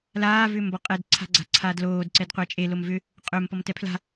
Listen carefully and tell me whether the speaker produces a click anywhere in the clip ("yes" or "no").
yes